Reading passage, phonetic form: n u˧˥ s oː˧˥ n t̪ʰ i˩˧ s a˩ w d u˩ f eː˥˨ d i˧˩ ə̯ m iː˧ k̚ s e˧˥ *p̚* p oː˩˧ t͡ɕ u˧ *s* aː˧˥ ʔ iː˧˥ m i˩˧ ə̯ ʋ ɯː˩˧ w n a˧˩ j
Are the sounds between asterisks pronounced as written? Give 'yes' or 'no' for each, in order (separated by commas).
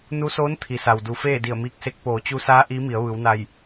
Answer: no, yes